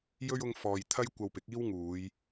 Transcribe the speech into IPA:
jɵ˥ɥ ʊ˧ŋfɔː˨j t̪ʰɐ˥j kʷɐ˧wpɪ˨˥k̚ iː˥wŋuː˨˧j

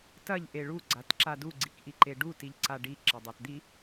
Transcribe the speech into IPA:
tɐʎ ʔeɭu ɡ͡ǀatǁadu ɡ͡ǀikʔiǃeɖu tiʎǀaɖi ǁɐdˤatd̪i

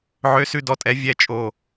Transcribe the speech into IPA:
ʕø˨˦sʉ˨dɔ˨tʼɛ˨˦ vʲɛ˨t͡ʃʼo˨

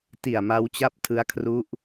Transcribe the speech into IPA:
ti˨˩a̯ ma˦˥w t͡ɕa˥˩p̚tʰɯ˦˥a̯kʰru˦˥ʔ

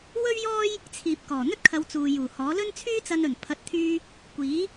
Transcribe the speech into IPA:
wɵ˥ɥjɔː˥j | t͡sʰiː˨p̚ kɔː˨˩ n̪ɵ˥t̚kʰɐ˨˧w t͡suː˨ juː˨˩hɔː˨˥ lɵ˥nt͡sʰyː˥t͡sɐ˧nɵ˨˩n pʰɐ˨˥t̚t̪ʰyː˧ | kʷiː˨˥

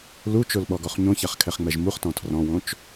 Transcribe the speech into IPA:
lut͡ʃolɓɔɡɔχ ɲõçaχkʰɛχŋ͡mɛʒ muχtɔ̃ tʰrɔ̃wõt͡ʃ

